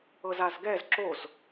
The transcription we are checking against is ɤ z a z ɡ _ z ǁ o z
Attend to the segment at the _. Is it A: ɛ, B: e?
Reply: A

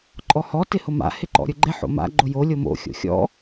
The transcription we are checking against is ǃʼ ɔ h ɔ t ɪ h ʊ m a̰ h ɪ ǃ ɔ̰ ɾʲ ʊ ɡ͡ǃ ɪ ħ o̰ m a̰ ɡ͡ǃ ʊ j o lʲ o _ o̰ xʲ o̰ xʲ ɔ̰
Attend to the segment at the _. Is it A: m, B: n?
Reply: A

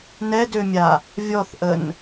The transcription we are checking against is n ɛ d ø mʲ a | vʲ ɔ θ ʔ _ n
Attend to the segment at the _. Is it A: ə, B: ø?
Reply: A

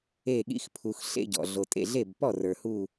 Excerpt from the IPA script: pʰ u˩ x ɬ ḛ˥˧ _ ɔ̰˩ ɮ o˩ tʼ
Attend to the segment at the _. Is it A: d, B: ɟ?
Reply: B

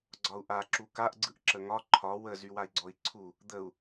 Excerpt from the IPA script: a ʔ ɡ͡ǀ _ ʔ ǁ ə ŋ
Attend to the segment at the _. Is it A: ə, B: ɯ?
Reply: B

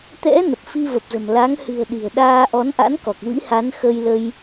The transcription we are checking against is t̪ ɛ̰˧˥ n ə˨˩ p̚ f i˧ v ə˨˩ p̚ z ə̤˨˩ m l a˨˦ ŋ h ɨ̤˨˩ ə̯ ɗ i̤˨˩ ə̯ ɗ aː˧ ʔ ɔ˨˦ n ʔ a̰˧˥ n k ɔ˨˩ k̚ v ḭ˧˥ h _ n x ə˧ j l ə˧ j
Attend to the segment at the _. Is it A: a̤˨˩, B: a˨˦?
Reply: B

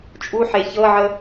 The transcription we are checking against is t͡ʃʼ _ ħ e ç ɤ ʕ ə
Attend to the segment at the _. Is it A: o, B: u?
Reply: B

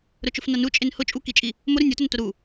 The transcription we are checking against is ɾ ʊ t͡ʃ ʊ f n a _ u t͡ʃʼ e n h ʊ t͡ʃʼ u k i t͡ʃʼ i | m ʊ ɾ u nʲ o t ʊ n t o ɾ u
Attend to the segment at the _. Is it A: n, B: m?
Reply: A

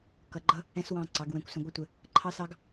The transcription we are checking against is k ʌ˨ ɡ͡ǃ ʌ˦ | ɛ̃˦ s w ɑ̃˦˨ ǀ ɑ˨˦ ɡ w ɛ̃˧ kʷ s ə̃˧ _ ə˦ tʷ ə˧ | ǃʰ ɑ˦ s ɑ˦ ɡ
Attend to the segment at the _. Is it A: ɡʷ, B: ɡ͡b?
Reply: A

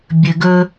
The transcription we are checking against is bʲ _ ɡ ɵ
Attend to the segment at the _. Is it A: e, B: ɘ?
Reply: B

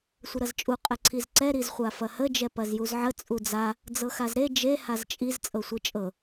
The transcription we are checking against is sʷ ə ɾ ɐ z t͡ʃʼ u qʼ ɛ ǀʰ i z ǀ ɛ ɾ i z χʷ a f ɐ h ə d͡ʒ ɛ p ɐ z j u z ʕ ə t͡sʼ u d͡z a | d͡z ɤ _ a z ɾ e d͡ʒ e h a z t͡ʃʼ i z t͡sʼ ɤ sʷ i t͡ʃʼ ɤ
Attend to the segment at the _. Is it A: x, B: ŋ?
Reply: A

